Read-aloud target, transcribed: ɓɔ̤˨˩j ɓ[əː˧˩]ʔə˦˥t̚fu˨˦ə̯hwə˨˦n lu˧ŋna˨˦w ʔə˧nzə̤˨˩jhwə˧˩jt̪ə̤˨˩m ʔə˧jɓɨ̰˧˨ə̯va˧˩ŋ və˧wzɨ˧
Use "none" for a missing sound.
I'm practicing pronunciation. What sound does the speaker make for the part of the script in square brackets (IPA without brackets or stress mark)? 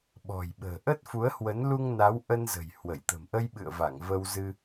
ə̤ː˨˩